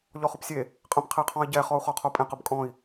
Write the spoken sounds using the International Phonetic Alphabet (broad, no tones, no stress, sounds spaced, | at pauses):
ʎ ɔ χ ʊ p sʲ e | qʼ ə̃ p qʰ e qʰ ɔ̃ i̯ ɟ ɛ χ ɔ u̯ χ ɔ qʰ o pʼ ẽ q ə b kʼ ɔ̃ i̯